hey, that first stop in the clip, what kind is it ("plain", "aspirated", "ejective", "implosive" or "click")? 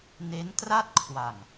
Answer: plain